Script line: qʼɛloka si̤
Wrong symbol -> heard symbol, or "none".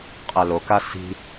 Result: none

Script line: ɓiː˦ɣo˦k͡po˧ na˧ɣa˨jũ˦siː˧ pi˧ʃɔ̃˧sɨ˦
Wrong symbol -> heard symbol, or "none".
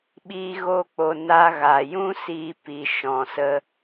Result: ɨ˦ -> ə˦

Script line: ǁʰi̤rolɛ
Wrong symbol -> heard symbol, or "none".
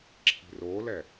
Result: none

